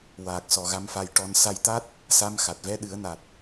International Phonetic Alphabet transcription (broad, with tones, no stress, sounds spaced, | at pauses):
w aː˨˩ k̚ s ɔ˨˩ ɣ a˧ m f a˧ j ʈ ɔ˧ n s a˧ j t̪ a˦˥ t̚ | s a˧˥ m x a˨˩ t̚ v ɛ˧˥ ɗ ɨ˨˩˦ ə̯ n a˨˩ t̚